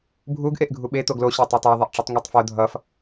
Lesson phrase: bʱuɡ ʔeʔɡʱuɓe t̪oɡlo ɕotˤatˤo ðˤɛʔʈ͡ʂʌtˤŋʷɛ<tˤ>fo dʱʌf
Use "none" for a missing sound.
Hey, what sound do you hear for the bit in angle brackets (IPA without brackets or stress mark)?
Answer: tˤ